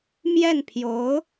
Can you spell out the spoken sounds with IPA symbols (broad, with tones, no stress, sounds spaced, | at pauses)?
m j ɛ˥˩ n pʰ j o˧˥ ʊ̯